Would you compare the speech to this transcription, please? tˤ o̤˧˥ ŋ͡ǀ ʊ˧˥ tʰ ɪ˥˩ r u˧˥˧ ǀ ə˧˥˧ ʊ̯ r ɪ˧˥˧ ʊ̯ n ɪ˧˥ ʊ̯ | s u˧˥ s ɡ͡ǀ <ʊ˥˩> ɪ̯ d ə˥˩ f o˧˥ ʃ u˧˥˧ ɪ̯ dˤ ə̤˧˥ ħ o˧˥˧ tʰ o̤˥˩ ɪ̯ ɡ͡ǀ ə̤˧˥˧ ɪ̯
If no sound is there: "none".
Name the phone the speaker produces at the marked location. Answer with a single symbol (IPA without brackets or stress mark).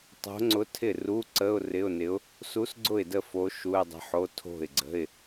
ʊ˥˩